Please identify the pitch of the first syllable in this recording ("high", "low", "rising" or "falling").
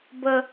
high